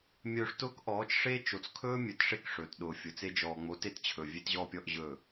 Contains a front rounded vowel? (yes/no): no